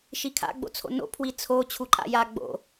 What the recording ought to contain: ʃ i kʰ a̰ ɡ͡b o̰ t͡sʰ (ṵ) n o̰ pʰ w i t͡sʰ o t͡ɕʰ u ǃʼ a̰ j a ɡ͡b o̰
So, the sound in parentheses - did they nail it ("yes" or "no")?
no